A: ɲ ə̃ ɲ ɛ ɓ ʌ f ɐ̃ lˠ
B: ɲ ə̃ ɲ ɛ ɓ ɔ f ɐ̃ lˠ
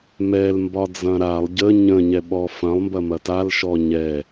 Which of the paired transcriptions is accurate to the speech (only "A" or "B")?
B